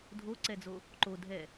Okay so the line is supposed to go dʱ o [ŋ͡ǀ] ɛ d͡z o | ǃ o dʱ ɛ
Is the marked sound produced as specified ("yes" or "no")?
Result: no